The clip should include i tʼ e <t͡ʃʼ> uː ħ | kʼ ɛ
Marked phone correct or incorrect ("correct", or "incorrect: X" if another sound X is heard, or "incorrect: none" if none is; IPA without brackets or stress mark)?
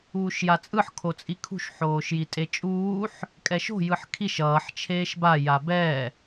correct